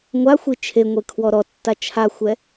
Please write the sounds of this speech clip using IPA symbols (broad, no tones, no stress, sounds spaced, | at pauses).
ŋʷ a xʷ i t͡ʃʰ e ŋʷ e kʰ w ɔ ɾ ɔ tː a t͡ʃʰ a xʷ ɛ